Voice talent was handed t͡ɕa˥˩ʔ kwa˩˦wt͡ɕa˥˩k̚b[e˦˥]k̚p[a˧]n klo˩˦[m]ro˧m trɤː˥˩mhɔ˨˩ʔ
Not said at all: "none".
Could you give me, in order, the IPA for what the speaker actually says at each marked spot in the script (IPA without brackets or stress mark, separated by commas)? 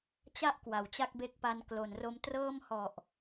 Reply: e˦˥, a˧, n